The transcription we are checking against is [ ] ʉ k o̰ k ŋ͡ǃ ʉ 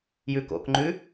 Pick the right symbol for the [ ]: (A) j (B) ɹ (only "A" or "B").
A